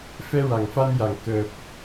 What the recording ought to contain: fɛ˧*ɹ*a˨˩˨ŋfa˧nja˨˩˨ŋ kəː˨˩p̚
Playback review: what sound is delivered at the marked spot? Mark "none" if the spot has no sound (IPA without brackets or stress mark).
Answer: ɹ